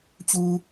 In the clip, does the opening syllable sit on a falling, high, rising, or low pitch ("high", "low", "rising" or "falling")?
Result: low